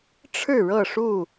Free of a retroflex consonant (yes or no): no